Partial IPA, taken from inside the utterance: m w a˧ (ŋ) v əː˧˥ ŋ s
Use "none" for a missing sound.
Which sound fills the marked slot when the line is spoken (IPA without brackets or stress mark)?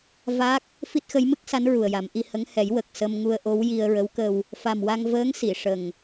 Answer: ŋ